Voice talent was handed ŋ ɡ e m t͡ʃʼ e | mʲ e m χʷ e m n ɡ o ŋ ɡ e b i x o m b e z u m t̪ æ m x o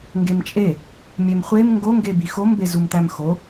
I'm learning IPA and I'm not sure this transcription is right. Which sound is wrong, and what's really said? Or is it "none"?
n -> ŋ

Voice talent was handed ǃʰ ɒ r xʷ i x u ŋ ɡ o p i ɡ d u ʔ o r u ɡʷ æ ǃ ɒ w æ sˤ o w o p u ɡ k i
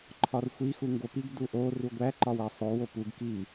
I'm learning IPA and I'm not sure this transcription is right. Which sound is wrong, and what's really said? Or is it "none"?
none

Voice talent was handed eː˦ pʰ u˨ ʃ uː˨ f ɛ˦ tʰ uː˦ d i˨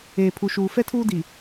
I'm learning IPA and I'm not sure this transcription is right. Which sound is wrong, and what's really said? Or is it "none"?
eː˦ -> eː˨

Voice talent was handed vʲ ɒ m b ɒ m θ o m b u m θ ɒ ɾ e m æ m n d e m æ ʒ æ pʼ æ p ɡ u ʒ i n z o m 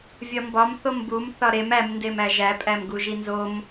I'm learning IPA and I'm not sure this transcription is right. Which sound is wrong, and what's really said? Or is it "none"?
p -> m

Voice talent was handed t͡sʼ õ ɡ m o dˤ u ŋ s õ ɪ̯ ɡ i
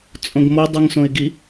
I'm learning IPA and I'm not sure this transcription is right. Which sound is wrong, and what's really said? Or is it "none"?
none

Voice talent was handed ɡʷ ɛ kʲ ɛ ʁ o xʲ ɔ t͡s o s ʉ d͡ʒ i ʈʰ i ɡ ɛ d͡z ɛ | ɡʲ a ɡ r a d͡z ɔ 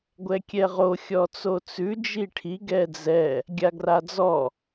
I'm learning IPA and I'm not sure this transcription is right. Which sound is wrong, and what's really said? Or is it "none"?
s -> t͡s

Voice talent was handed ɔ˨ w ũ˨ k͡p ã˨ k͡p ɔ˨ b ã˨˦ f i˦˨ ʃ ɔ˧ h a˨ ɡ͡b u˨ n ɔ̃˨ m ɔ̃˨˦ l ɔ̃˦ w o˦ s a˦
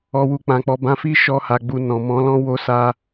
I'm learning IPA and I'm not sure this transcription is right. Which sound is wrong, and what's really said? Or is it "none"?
ũ˨ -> u˨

